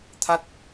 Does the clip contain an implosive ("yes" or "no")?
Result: no